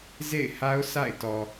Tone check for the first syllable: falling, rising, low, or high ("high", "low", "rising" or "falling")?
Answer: falling